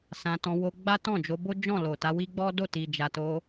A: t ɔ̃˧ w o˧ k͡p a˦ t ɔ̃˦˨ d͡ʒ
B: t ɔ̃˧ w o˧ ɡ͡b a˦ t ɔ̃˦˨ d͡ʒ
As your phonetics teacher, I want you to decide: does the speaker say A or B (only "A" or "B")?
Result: B